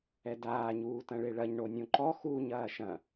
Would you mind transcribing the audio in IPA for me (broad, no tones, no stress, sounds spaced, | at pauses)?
ɛ d aː ɲ uː t ɐ̃ ɭ e ɭ ɐ ɲ ɳ o nʲ õ ǃ ɔ x uː ɲ ɐː ʃ ɐ̃